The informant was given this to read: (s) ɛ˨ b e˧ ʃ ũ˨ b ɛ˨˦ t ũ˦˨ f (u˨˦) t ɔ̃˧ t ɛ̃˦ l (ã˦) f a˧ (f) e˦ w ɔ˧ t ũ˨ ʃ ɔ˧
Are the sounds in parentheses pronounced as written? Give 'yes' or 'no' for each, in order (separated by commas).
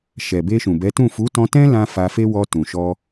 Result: no, yes, yes, yes